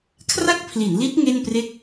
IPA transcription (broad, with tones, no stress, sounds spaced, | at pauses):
kʰ r a˥˩ k̚ pʰ l i˩˦ n l i˦˥ t̚ ŋ e˥˩ n p r e˥˩ k̚